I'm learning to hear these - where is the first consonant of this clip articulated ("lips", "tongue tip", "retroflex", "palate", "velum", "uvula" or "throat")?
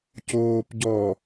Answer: palate